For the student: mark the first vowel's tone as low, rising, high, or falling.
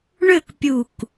falling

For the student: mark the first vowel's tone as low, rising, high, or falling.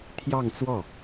falling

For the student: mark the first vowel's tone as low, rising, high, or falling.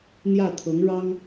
falling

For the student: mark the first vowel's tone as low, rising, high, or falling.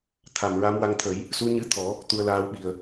low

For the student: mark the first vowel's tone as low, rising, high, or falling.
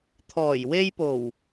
low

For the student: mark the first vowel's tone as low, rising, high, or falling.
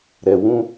low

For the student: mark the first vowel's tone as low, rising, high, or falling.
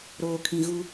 low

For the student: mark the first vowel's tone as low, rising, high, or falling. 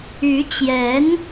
rising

